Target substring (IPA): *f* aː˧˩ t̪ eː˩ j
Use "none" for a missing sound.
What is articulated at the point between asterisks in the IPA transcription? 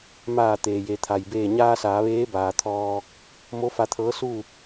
m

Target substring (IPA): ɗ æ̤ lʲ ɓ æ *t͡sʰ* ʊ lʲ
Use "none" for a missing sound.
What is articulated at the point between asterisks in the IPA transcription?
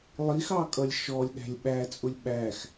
t͡sʼ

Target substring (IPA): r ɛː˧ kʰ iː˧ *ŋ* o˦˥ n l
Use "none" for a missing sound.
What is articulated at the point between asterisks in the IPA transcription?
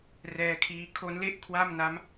kʰ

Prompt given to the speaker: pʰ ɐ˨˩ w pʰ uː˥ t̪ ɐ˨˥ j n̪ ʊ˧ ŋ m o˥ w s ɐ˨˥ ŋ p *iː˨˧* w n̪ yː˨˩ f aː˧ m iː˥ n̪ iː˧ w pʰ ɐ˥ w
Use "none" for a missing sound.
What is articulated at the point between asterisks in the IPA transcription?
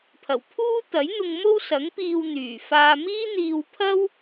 iː˧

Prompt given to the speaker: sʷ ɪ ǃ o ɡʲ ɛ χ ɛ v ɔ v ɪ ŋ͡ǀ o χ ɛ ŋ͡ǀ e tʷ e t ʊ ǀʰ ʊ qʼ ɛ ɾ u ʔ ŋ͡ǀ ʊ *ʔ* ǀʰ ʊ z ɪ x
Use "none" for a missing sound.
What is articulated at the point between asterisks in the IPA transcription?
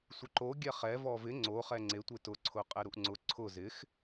none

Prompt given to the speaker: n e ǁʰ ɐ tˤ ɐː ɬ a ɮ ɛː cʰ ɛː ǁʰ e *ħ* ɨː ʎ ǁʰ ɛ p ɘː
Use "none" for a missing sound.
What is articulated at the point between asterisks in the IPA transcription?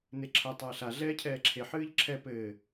ħ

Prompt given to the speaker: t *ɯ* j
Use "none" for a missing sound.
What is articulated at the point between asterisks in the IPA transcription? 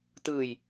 ɯ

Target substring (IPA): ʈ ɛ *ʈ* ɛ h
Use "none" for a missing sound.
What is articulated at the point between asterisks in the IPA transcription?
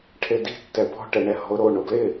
ɳ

